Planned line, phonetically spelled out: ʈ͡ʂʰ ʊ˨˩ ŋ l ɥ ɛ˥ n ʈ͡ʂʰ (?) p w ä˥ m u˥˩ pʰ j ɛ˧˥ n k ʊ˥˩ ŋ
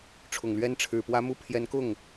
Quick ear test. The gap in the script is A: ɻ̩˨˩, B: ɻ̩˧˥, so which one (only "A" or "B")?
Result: A